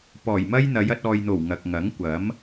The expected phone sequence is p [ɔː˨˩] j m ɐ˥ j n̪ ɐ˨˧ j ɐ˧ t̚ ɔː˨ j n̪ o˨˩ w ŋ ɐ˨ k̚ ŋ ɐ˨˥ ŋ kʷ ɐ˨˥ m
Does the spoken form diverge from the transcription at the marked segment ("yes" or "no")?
no